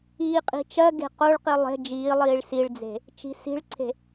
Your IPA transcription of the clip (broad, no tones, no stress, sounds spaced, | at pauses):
iː qʼ i̤ t͡ʃ ɜ ɡ e̤ q o ɭ q i lˠ e̤ d͡ʒ iː lˠ iː ɭ s i ɭ d͡z e̤ | t͡ʃ i̤ s i̤ ɭ ǀʰ e̤